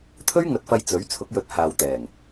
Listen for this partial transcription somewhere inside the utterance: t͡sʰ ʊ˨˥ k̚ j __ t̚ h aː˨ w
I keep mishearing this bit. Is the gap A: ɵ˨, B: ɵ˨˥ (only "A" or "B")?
B